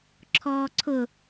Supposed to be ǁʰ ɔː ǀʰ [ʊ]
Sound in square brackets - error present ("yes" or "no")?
no